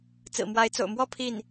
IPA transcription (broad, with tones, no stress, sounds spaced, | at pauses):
t͡s ɹ̩˨˩ m w a˧˥ ɪ̯ t͡s o̰˨˩ ʊ̯ m w ɔ˥˧ pʰ i˥˩ n